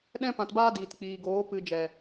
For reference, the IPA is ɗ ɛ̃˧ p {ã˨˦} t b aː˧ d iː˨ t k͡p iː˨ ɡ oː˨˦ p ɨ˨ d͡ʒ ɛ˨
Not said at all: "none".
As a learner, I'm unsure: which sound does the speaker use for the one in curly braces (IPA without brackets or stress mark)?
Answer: ã˨